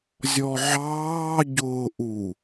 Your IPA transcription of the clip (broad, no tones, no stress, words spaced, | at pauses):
zʲɔʕɑː ɟʊːʔu